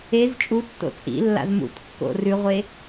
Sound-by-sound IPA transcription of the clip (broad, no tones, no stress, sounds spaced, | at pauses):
e z t͡ʃʼ u tː o̰ t͡sʼ ḭ lː a̰ z m ṵ t kː o̰ r ʉ ʁʷ e